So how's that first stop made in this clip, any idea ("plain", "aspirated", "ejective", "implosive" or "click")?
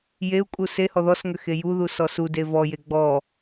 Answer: ejective